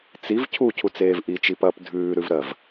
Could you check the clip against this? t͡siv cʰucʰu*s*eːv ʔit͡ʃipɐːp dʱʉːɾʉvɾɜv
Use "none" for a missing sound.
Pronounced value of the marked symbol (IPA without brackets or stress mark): t͡s